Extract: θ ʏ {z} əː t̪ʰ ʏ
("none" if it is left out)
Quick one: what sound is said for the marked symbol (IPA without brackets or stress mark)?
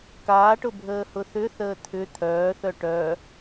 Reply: θ